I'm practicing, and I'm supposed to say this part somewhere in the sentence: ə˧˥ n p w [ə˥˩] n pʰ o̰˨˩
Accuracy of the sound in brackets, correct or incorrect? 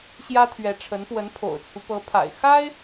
incorrect